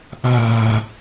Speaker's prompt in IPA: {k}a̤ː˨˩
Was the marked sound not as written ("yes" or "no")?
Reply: yes